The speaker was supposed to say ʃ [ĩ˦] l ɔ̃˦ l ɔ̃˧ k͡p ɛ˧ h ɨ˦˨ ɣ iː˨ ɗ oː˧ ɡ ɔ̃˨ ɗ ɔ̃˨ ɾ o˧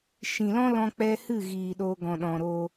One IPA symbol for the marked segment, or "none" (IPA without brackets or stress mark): ĩ˨